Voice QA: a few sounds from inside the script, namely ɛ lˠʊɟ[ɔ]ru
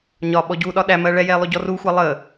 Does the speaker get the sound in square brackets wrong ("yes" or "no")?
no